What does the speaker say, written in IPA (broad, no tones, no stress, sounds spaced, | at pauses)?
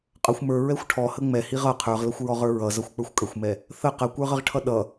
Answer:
qʼ ʌ xʷ m ə˞ ɹ ɛ xʷ ʈʰ ɔ h ə ŋ͡m ɛ h i ʁ ʌ qʰ ə˞ ʁ l ʌ xʷ ɹ ɔ ʁ ə˞ ɹ ʌ z ʌ xʷ k͡p ə˞ xʷ kʼ ə xʷ m ɛ | θ ə q ə kʷ ə˞ ʁ ə ʁ ʈʰ ʌ ɗ ʌ